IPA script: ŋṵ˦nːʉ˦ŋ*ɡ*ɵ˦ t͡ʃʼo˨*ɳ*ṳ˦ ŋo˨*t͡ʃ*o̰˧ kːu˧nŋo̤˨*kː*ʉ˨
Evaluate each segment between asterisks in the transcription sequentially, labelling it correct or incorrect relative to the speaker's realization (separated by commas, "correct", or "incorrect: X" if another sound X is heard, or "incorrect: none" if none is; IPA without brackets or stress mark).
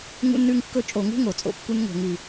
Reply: incorrect: kː, incorrect: ŋ, incorrect: t͡sʼ, incorrect: ŋ